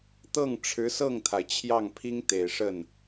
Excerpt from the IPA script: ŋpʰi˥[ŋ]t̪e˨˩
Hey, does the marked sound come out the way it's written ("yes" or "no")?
yes